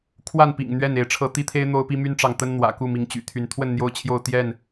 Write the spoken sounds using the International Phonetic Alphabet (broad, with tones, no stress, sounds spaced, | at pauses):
kʰ w a˥˨ n p ḭ˨˩ ŋ n̪ ɥ ɛ˥˨ n e˨˦ ɪ̯ ʈ͡ʂʰ ɤ˦ t̪ i˦ t̪ʰ e˦ ɪ̯ n̪ o˦ ʊ̯ p i˦ m y˦ n ʈ͡ʂ ɑ˨ ŋ t̪ ə˦ n n̪ w ä̰˨˩ k u˥˨ m i˨˦ ŋ t͡ɕ y̰˨˩ t̪ʰ y˨˦ n t̪ʰ w ə˥˨ n n̪ j o˦ ʊ̯ t͡ɕʰ j o˥˨ ʊ̯ t̪ j ɛ˥˨ n